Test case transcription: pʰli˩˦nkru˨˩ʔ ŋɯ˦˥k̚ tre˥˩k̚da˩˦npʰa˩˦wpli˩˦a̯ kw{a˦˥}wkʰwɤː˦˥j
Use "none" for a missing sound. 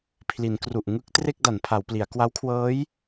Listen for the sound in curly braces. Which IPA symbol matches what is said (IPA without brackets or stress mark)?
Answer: a˦˥